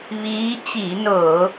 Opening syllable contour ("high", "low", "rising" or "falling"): rising